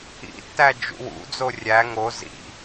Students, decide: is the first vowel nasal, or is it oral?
oral